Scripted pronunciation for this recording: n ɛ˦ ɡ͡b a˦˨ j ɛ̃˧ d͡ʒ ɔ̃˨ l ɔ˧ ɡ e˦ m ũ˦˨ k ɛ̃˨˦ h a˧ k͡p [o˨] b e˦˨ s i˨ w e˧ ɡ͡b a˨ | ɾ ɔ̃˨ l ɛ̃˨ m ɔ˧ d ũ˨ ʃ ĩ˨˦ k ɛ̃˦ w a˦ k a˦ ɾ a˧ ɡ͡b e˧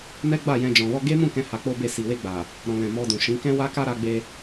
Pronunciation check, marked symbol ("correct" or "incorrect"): incorrect